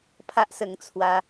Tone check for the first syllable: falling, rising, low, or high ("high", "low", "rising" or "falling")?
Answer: high